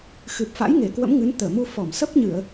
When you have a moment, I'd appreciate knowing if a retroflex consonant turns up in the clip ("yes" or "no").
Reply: no